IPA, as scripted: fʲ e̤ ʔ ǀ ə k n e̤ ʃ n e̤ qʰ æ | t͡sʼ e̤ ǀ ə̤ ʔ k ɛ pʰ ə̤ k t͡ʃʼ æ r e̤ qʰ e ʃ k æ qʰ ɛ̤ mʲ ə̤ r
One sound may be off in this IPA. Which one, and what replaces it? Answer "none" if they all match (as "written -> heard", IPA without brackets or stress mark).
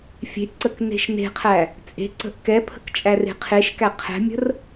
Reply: none